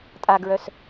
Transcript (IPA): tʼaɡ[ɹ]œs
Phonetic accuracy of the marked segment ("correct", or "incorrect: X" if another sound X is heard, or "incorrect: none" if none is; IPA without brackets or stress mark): correct